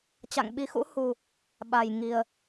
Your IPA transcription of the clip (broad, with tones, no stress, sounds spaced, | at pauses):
t͡ɕ a̰˧˨ ŋ ɓ i˨˦ x ṵ˧˥ h u˨˩ | ɓ a˨˩ j ŋ i˨˩ ə̯